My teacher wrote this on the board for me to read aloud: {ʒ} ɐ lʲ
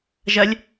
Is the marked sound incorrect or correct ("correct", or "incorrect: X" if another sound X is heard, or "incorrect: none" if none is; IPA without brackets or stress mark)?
correct